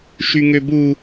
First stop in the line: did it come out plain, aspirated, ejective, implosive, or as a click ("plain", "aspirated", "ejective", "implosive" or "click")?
plain